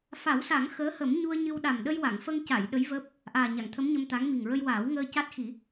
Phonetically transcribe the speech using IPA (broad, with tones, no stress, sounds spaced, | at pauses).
f a˨˩˦ w s a˨˩˦ ŋ x əː˧˥ h ə˨˩˦ m ɲ u˧ ə̯ ɲ ɨ˧ w ɗ a˨˩ m ɗ ə˧ j w a˨˩˨ ŋ f ə˧ ŋ c a˨˩˨ j ɗ ə˧˥ j v əː˦˥ p̚ | ʔ aː˨˩ ɲ a˨˩˨ ŋ t̪ʰ ə˧˥ m ɲ ə˧ m t̪ a˧˥ ŋ m i˨˩ ŋ ɹ ə˧ j w aː˨˩˦ w ŋ əː˧ c a˦˥ t̚ x i˨˩˦